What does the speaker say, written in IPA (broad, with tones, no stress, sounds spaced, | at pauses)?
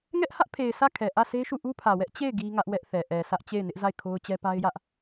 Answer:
ŋ ɛ˦ ʔ h ä˦ ʔ pʰ e˨ ɪ̯ s ä˦˨ kʰ ɛ˨ ʔ ä˦˨ s e˦ ʃ u˦˨ ʔ u˦ pʰ ä˨ w ɛ˦ ʔ t͡ɕ e˦˨ ɪ̯ ɡ i˦ ŋ ä˦ ʔ w ɛ˦ ʔ θ ɛ˨ ʔ ɛ˨ sʰ ä˦ ʔ t͡ɕ e˦˨ ɪ̯ n ɪ˦ ʔ z a˦˨ ɪ̯ kʰ o˦ ʊ̯ t͡ɕ ɛ˦ p a˦ ɪ̯ j ä˦ ʔ